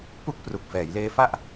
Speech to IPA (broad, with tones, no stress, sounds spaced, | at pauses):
p u˦˥ k̚ p r u˨˩ k̚ f ɛː˩˦ j l eː˦˥ f a˥˩ ʔ